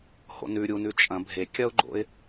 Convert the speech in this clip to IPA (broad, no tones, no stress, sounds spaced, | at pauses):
h o̰ n ʉ ɾʲ u n ʉ t͡ʃʼ ɐ̃ bʱ e kʲ ɐ ʊ̯ ɡ͡ǃ o̰ ɪ̯